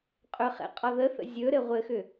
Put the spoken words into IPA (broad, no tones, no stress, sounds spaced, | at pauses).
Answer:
qʼ ɵ χ ɛ̰ qʼ ɒ ð ə θ ə̰ zʲ ɵ ɾ ɘ ʁʷ ɘ x ʏ